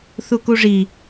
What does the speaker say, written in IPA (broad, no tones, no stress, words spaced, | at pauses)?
θukuʐi